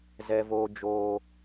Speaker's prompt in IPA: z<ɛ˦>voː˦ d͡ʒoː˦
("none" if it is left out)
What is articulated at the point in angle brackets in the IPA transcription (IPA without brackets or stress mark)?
ɛ˦